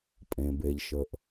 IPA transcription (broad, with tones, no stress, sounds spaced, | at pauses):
pʼ ẽ˩ b e˩ ʎ ʃ ə˩ ʔ